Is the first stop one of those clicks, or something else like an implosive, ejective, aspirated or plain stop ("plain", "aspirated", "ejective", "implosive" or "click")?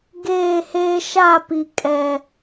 plain